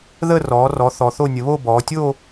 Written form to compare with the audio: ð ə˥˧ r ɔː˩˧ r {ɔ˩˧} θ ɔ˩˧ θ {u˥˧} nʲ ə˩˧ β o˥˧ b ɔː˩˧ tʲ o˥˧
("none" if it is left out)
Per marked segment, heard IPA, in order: ɔ˩˧, o˥˧

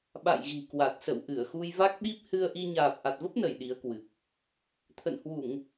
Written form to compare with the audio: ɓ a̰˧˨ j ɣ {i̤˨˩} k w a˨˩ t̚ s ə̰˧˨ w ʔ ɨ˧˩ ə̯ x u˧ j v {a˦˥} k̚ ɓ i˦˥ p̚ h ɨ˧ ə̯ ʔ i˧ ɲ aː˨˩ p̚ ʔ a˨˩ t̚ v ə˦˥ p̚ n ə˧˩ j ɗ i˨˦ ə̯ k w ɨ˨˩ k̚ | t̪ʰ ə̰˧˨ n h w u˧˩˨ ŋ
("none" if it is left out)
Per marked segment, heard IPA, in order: i̤˨˩, a˦˥

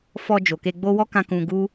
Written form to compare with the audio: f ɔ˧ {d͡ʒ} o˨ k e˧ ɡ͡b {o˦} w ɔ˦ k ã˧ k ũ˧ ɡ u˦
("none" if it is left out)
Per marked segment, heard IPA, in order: d͡ʒ, o˦

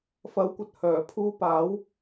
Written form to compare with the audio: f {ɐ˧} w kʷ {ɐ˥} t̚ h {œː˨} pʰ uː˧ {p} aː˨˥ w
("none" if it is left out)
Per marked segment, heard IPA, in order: ɐ˨˥, ɐ˨, œː˨˩, p

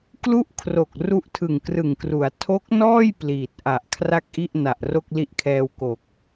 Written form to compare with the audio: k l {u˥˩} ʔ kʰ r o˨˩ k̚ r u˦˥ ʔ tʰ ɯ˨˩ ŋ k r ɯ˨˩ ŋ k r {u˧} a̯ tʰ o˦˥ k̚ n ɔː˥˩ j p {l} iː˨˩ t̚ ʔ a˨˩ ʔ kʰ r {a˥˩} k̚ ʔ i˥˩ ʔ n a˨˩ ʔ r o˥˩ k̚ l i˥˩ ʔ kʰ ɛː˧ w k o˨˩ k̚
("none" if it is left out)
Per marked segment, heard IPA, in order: u˥˩, u˩˦, l, a˥˩

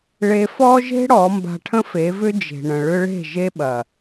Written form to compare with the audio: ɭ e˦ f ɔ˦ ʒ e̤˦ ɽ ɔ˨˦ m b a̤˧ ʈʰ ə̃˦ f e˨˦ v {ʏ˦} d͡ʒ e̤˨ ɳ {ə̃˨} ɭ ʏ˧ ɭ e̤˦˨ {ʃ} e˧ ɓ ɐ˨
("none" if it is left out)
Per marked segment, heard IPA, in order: ʏ˦, ə̃˨, ʒ

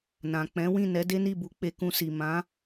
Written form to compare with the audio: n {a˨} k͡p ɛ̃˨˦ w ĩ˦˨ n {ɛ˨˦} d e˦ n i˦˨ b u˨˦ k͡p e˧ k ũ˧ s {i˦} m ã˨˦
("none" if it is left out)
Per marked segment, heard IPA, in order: ã˨, ɛ˨˦, i˨

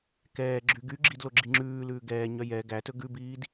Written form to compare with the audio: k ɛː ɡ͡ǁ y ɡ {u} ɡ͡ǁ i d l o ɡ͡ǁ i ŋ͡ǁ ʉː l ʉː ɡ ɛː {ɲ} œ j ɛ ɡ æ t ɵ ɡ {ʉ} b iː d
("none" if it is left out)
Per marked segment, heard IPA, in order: y, ɲ, ʉ

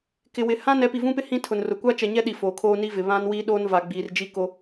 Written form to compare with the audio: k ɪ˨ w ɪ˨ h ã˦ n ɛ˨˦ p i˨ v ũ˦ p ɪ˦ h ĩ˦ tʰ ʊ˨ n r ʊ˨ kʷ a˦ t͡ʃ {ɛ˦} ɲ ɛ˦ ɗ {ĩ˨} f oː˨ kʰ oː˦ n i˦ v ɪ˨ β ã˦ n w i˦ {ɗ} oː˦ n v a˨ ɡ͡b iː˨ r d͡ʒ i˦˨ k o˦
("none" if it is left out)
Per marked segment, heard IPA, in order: ɛ˨, i˨, ɗ

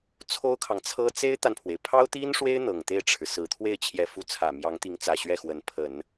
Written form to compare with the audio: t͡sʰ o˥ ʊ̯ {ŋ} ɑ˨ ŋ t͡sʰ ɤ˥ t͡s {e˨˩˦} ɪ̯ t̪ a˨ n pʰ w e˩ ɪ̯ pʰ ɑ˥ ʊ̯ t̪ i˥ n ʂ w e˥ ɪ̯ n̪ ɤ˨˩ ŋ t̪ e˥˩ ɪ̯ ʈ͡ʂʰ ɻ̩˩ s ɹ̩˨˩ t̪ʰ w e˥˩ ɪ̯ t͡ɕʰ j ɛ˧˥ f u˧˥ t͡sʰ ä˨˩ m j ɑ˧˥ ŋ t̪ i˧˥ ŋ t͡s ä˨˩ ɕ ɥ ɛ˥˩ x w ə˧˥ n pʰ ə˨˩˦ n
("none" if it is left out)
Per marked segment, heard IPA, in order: kʰ, e˥

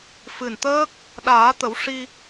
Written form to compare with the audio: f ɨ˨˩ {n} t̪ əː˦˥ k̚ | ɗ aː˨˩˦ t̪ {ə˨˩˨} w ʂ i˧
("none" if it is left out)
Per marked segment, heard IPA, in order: n, ə˨˩˦

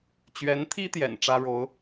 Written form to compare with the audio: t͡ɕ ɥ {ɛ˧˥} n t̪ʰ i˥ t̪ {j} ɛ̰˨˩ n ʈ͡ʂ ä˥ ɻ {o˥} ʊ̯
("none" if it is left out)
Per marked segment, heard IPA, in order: ɛ˧˥, j, o˧˥

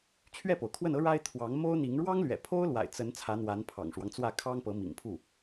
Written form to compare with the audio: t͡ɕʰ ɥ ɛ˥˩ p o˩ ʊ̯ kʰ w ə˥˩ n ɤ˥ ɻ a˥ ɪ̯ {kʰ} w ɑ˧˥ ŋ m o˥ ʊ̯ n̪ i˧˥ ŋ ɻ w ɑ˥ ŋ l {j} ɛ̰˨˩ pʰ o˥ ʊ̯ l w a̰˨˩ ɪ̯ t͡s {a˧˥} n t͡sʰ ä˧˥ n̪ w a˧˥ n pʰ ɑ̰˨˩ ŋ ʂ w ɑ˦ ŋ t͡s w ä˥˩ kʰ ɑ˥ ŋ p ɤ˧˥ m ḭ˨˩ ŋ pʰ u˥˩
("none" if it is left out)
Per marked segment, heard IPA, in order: t̪ʰ, ɥ, ə˧˥

